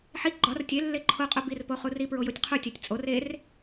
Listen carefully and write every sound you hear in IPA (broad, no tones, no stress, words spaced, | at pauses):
ħi ɡ͡ǃɒr tʲe lːeǃʰoqʼu birpo χuripɹo jotʲqʰutʲætʲ t͡sʼor er